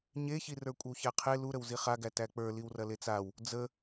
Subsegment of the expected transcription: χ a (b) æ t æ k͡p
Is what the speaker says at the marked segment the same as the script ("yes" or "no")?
no